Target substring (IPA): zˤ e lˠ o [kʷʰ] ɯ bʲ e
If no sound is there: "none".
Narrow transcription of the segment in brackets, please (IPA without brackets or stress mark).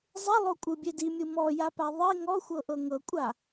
kʷʼ